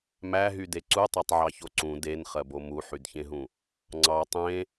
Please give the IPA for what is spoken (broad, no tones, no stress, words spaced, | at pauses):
mæɦyde ǀutˤɑtˤʕɑço ǀũ denχɜbo muħydçẽɦũ | ŋ͡ǀɑ tˤẽ